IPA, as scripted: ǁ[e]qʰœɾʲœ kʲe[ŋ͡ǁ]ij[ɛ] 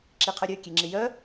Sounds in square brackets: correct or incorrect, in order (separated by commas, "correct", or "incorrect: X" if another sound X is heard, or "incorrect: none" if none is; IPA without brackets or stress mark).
incorrect: i, correct, incorrect: œ